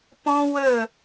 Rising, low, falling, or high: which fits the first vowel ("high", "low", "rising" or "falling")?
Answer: high